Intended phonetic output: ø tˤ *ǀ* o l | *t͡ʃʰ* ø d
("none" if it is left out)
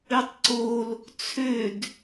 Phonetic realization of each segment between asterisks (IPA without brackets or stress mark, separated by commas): ǀ, t͡sʰ